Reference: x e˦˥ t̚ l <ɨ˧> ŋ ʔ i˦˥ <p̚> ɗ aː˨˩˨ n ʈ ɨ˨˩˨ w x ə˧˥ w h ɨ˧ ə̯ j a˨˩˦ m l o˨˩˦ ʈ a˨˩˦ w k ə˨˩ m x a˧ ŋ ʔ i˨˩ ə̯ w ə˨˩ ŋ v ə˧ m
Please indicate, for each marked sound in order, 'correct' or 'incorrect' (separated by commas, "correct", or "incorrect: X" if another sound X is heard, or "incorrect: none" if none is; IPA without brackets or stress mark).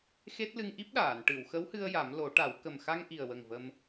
correct, correct